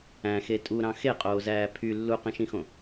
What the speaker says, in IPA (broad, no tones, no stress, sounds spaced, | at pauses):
æ̃ x e tʼ u ɾ ɑ̃ x e qʼ oː z æː pʰ y lː u q ĩ ʃ ĩ x õ